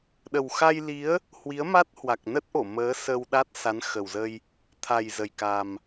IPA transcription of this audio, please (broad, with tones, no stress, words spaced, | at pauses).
ɗə˨˩wxa˧jli˨˦ə̯ | hwi˨˦ə̯ma˦˥t̚ hwa˨˩k̚ nə˦˥t̚ʔo˧˩ məː˨˦sə˧wɗa˦˥t̚ sa˨˦nxə˨˩wzə˧j | t̪ʰa˨˩j zə˨˩jka˨˩m